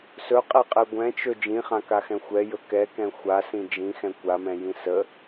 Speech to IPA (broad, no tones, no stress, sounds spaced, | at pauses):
s ɵ qʼ ɛ qʼ ɛ ɡʷ ɛ̃ t͡ʃ ɵ d͡ʒ ĩ χ ã k a x ɛ̃ xʷ ɛ j ɵ k ɛ k ɛ̃ xʷ a s ĩ d͡ʒ ĩ x ɛ̃ kʷ a m ɛ̃ j ĩ s ə